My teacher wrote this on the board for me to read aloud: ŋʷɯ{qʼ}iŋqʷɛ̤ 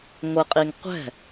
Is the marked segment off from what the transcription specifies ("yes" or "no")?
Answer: no